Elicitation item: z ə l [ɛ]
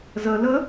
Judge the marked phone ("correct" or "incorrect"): incorrect